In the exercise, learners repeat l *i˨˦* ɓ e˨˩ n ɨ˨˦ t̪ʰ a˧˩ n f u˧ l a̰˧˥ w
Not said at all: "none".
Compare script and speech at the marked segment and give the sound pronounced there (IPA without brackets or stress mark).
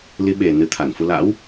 i˨˦